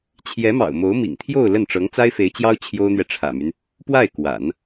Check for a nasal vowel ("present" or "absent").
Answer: absent